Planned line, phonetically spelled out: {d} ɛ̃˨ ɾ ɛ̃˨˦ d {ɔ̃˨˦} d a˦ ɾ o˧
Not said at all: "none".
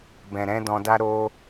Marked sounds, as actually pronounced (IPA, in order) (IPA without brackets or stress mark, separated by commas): b, ɔ̃˧